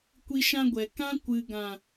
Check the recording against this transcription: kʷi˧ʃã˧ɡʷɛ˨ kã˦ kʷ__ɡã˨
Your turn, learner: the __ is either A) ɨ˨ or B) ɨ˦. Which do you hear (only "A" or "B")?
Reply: A